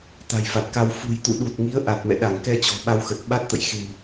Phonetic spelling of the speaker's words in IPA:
t̪ a̤˨˩ j f a˨˩ t̚ k a˧ w f ṳ˨˩ j t̪ ṵ˧˨ ɗ u˨˩ t̚ ŋ i˨˦ ə̯ ʔ a˨˩ t̚ m ɛ̰˧˨ ɗ a˧˩ ŋ k ɛ˧ t͡ɕ ɔ̤˨˩ ɓ a˧ w x ə˨˩ t̚ ɓ a˦˥ t̚ t̪ ə̰˧˨ j x e̤˨˩ w

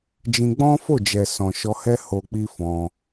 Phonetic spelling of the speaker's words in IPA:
d͡ʒ ĩ˧ ɡ͡b ɔ̃˦ f o˦˨ d͡ʒ ɛ˨ s ɔ̃˨ ʃ ɔ˧ h ɛ˦ h o˧ k͡p i˦ f ɔ̃˧

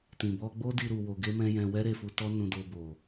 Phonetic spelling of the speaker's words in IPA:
t ĩ˨ b ɔ˧ ɡ͡b o˦ d i˧ ɾ u˨ w o˧ ɡ e˦ m ɛ̃˦ j ɛ̃˧ w ɛ˦ ɾ e˦˨ f u˧ t ɔ˦ n ũ˧ d o˧ b o˨

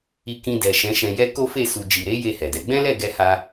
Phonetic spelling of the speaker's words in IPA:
i˧ k ĩ˧ d ɛ˨ ʃ ɛ̃˨˦ ʃ ɛ̃˧ j ɛ˦ k o˦ f e˦˨ s u˨ d͡ʒ i˨ ɾ e˨˦ j e˦˨ h ɛ˨ d ɛ˨˦ ɡ͡b ɛ̃˦ l ɛ˦˨ ɡ ɛ˧ h a˧

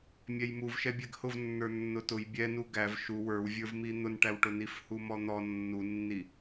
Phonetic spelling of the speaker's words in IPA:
mʲ ɛ j m u v ʃ ɛ bʲ ɛ ɡ h ʊ v nː ə˞ nː ʊ t ʊ j bʲ ɛ n u ɡ æ v ʃ u w ə˞ w vʲ ə˞ v m i n̪ ʊ n ʈ æ w ʈ ʊ n i f h u m ɔ n̪ ɔ nː u nː i

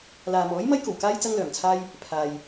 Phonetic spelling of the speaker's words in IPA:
l aː˨ m ɔː˨˥ j m ɐ˧ j k o˨˩ w k aː˧ j t͡s ɐ˧ ŋ l œː˨˩ m t͡sʰ aː˧ j | pʰ aː˨ j

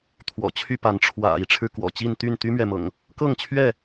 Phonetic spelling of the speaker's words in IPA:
t̪ʰ w ɔ̰˨˩ t͡ɕʰ y˥˨ p a˨˦ n ʈ͡ʂʰ w ä̰˨˩ i˨˦ ʈ͡ʂʰ ɻ̩˧ k w ɔ̰˨˩ t͡ɕ i˥˨ n t̪ y˥˨ n t̪ y˦ m ɥ ɛ˨ m ɤ̰˨˩ ŋ | k ɤ˥˨ ŋ t͡ɕʰ ɥ ɛ˥˨

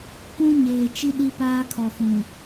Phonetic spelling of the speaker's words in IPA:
kʷ ũ˦ ɲ eː˨ t͡ʃ i˦ ɗ i˦ p aː˦ kʰ ɔ˨ f ũ˨

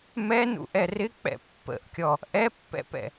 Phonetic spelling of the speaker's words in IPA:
m ɛ n ṵ ʔ ɛ r ɪ k͡p ɛ̰ pː ə̰ ʔ kʲ ɔ | ʔ ɛ pː ɛ̰ p ɛ̰

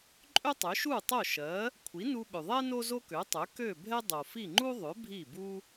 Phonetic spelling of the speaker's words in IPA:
ǃʼ ø˥ tˤ ø˩˥ ʃ u˥˩ tˤ o˥˩ ʃ ɜ˩˥ | kʷʰ i˩˥ n u˧ ɓ ø˩ ðˤ ɛ˥ n o˥ z o˥ k ø˩˥ tˤ ø˩˥ k ø˥˩ bʱ ɛ˥ dˤ o˩ f i˥˩ ŋ͡ǃ u˥ ðˤ ø˩˥ bʱ i˥˩ b u˥

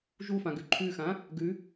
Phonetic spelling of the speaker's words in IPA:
ʒ u f ã ɡ ʉ ǃʰ ʉ x ã | ɡ ʉ

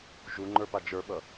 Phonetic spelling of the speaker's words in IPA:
ʒ u ŋ͡ǃ ə˞ p a d͡ʒ ə˞ ɓ ʌ

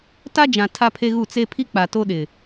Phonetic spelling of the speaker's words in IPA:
t a˦ d͡ʒ ã˨ tʰ a˦ pʰ e˦ ɣ u˦˨ t͡s e˦ pʰ i˦ k͡p a˨ t o˦ ɗ ɪ˨

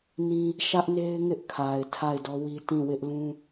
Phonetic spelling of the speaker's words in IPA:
n ĩ˦ | ʃ ä˦ ʔ n e˦ ɪ̯ ŋ ɪ˦ ʔ kʰ a˨ ɪ̯ tʰ a˦˨ ɪ̯ d ɔ˦ w i˦ t ĩ˦˨ w ɪ˦ ʔ l ũ˦

